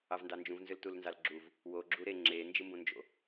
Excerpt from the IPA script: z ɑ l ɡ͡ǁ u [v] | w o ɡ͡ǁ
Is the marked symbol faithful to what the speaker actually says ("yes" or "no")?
yes